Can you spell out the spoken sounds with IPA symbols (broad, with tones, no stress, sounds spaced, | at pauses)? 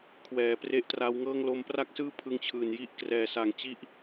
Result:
kʰ w ɛː˩˦ p r e˦˥ ʔ t r a˦˥ w ŋ ɤː˥˩ ŋ l o˧ m p r a˥˩ k̚ s ɯː˥˩ pʰ ɯ˧ ŋ t͡ɕʰ ɯː˨˩ n j i˥˩ ʔ k r ɛː˨˩ s a˩˦ ŋ t͡ɕ i˦˥ ʔ